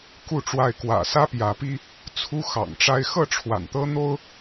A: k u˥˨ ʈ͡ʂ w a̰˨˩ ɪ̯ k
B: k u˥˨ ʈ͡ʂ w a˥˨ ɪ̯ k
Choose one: B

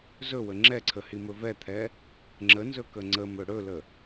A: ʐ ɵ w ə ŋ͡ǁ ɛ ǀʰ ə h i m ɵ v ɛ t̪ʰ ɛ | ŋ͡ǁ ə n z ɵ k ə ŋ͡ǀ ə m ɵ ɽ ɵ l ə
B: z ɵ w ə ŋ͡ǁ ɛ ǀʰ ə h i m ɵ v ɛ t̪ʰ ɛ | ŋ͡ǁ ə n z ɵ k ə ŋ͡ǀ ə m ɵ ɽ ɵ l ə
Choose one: B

